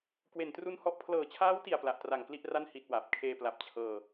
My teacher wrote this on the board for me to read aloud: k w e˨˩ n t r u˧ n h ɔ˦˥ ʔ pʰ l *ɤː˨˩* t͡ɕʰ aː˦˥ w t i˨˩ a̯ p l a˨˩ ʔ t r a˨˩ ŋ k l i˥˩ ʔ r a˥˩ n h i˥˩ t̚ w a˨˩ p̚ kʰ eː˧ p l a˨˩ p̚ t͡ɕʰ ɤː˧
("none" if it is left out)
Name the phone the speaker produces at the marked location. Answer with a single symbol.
ɤː˨˩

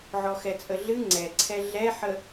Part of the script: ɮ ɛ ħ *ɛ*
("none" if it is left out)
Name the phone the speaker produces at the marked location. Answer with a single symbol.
ə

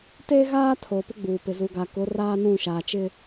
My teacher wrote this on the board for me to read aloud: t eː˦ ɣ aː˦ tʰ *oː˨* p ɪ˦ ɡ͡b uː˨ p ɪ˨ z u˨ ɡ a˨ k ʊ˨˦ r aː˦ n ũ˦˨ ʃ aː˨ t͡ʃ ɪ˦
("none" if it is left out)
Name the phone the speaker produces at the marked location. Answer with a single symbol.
oː˨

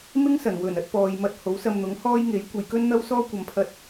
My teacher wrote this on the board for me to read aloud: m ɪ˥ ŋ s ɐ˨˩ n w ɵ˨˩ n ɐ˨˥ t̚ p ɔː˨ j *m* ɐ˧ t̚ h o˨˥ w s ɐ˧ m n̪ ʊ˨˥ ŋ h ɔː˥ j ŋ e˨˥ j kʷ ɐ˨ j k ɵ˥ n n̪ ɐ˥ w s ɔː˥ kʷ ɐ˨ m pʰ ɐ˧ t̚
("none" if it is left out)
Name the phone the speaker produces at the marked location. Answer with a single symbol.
m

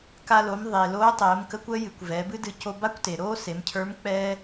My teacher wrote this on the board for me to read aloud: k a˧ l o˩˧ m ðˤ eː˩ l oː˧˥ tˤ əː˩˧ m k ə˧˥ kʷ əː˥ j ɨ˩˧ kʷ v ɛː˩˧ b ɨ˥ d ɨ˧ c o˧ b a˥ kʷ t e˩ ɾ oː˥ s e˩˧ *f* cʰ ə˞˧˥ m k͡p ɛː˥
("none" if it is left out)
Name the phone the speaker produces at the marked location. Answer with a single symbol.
m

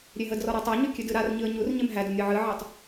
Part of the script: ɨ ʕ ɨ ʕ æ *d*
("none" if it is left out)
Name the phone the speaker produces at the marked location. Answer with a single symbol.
tˤ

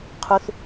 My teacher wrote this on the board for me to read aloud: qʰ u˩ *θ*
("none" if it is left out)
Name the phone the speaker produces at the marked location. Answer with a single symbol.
θ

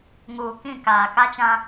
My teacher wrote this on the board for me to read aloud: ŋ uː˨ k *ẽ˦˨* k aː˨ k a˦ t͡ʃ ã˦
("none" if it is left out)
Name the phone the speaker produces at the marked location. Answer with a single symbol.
ĩ˦˨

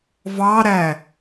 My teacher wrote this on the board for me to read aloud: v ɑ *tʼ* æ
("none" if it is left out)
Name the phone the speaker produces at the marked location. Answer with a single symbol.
ɾ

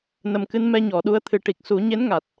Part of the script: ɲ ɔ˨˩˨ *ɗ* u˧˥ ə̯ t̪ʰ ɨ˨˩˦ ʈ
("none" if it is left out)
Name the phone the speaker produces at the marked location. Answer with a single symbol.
ɗ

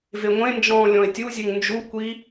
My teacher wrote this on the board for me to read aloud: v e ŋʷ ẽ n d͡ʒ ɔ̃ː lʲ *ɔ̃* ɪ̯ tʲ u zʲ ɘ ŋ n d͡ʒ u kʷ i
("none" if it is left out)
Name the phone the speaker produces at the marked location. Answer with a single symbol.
ɔ̃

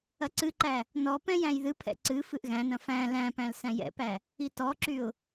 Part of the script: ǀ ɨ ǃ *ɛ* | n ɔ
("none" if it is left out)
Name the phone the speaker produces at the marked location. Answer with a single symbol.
æ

